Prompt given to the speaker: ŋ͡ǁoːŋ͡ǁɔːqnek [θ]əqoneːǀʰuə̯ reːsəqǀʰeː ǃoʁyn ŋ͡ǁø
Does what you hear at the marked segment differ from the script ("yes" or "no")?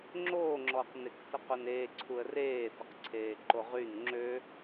yes